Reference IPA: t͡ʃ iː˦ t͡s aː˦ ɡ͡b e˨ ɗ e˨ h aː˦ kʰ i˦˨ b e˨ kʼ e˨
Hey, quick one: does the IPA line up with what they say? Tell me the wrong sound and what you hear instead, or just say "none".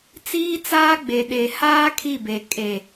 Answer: t͡ʃ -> t͡s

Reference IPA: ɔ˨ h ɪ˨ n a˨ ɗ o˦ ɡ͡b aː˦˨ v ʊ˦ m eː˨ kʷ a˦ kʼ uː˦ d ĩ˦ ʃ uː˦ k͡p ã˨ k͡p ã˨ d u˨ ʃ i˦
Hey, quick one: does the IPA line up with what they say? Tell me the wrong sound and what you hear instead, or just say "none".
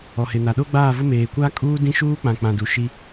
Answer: none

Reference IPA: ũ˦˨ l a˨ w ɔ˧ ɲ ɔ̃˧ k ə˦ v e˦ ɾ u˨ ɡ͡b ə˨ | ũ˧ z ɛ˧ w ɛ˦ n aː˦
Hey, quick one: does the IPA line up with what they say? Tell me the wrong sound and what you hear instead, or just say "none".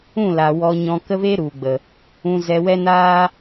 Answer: none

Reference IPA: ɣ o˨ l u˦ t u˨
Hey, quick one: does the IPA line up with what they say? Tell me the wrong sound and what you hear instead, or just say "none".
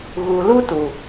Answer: o˨ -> u˨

